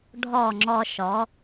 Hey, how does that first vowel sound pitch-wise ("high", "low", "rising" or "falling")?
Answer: falling